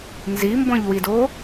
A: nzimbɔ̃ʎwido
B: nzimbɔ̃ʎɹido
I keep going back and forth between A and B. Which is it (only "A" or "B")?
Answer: A